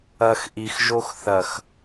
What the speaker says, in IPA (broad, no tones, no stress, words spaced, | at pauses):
ɐx ʔixʒox θɐx